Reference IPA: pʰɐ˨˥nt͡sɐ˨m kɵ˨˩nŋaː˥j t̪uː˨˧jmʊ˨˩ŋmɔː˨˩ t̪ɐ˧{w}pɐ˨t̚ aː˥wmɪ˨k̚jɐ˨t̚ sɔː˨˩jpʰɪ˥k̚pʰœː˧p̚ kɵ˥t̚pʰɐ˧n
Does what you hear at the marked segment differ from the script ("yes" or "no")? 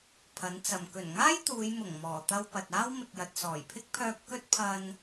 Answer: no